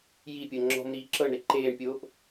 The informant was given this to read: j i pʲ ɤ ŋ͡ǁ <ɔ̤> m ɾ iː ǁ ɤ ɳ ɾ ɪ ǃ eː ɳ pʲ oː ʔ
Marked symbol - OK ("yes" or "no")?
yes